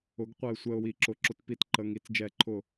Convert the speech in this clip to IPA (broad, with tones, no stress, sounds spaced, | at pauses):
ʊ˩˥ ɡ qʷ ɛ˧ ɪ̯ sʷ ɛ˧ ʊ̯ w i˧˩˧ ǁ ʊ˩˧˩ ǁ ʊ˧˩˧ t p i˧˩˧ t ǃ ə˩˧˩ ŋ i˧˩˧ t͡s d͡ʒ ɛ˧˩˧ ǃʰ ʊ˧˩˧